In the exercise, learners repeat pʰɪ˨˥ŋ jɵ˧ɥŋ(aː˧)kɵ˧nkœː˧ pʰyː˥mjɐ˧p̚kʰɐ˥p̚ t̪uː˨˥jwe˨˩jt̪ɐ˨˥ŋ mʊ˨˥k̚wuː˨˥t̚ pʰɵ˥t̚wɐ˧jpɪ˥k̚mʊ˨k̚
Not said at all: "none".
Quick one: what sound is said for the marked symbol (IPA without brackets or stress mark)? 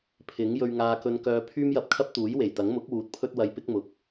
aː˧